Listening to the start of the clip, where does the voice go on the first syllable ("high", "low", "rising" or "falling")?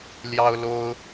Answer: high